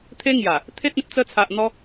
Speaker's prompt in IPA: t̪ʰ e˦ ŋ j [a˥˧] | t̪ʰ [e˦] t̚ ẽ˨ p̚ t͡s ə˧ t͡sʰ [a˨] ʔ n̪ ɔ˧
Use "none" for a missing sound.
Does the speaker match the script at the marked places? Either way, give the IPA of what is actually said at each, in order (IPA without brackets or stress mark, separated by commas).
a˨˩, e˦, a˨